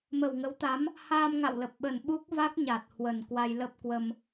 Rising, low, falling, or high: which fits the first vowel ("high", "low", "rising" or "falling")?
low